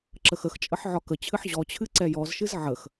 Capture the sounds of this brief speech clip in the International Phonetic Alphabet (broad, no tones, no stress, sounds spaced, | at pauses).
ǁ ə x ə x t͡ʃʼ ə ħ ʕ ɒ k ə t͡ɕʰ ɨ ħ ʑ ɔ t͡ɕʰ ɨ ǀ ɛ j ɔ z ʃ ɨ z ʕ ə x